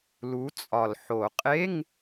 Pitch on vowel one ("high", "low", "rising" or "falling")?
rising